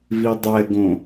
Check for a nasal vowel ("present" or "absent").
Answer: present